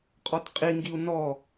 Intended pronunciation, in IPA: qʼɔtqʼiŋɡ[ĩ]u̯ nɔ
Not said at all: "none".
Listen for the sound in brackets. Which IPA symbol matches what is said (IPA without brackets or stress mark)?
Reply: i